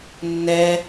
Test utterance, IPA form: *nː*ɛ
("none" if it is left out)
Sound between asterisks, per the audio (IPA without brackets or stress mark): nː